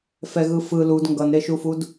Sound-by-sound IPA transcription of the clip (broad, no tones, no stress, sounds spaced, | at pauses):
f ɛ ɣ ɯ f ɯ l u d ŋ ɡ ʌ n ɾ e ʃ u f u d